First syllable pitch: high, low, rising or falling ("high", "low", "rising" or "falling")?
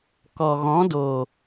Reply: low